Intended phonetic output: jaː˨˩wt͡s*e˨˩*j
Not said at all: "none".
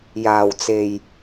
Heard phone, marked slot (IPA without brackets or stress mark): e˨˩